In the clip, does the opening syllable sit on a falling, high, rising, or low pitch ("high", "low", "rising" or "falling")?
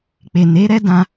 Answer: low